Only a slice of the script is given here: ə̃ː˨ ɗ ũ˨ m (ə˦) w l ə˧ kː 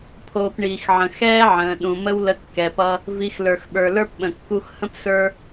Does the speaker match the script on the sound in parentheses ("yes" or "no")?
yes